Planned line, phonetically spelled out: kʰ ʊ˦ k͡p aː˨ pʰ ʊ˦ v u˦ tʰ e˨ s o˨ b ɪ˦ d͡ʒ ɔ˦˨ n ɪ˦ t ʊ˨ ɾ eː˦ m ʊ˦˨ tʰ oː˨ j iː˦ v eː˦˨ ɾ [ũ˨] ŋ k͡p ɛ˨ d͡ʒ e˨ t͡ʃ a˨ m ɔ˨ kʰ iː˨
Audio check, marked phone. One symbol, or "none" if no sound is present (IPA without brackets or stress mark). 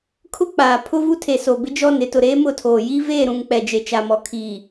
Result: ũ˨